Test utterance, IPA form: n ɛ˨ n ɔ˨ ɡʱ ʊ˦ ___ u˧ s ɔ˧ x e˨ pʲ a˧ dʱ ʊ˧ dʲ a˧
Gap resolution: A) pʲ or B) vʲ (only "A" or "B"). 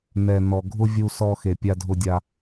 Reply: B